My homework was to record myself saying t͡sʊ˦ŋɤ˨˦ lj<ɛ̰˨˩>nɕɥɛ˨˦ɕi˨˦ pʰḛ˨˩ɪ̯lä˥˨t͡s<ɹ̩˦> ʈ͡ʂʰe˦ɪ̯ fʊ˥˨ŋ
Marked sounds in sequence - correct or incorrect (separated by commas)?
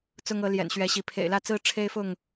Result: correct, correct